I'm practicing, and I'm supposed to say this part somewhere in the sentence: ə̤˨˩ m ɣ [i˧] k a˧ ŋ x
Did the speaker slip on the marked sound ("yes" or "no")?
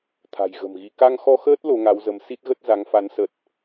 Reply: no